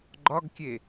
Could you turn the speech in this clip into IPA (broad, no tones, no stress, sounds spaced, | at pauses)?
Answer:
ɡ͡ǃ ɒ ɡ kʲ e